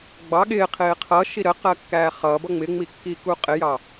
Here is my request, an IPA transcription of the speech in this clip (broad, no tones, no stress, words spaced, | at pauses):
ɡ͡bɑ ɠɪː qʰɪːqʰʌʃi ɾəqɜ kːæːχʌːbʌ ŋ͡mɪŋ͡mi kːiːkuːqʼɪjɑ